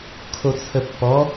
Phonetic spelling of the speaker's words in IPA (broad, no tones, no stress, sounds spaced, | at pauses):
kʰ o t͡sʰ ə pː ɔ